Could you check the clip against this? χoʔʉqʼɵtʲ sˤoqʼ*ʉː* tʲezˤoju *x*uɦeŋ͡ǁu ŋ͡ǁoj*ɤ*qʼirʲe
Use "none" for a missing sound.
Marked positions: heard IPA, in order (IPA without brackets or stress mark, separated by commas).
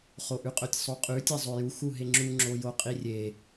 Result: ʉ, x, o